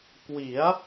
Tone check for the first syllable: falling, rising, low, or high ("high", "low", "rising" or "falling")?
rising